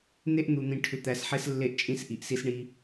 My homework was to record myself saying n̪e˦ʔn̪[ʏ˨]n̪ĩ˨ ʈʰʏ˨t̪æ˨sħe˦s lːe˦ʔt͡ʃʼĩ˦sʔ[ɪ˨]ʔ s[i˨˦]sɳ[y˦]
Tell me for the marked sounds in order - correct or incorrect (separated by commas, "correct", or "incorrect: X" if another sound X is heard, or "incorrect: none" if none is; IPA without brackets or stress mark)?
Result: incorrect: u˨, incorrect: i˨, incorrect: i˦, incorrect: i˦